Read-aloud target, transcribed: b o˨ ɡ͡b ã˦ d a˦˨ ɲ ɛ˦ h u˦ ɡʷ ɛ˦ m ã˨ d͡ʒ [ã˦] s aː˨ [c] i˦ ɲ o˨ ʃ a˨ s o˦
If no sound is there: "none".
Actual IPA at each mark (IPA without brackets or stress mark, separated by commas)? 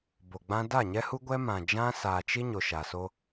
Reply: ã˦, t͡ʃ